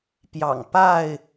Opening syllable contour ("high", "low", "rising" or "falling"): low